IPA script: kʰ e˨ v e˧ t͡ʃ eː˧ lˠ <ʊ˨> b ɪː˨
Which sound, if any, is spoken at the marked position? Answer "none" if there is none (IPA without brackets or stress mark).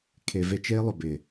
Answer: ʊ˨